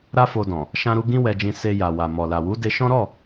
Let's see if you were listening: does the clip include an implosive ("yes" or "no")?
no